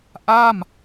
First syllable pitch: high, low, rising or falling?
falling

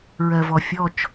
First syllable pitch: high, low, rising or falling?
low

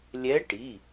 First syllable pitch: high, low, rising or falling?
rising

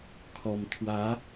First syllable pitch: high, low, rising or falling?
low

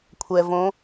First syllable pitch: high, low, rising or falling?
low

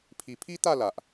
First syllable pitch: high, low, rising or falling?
low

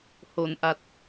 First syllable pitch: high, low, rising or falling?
low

